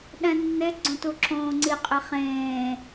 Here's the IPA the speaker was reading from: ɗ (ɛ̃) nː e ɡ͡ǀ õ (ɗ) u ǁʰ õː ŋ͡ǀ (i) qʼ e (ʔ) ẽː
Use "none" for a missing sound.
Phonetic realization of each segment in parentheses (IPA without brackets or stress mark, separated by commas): ɛ̃, t, i, χ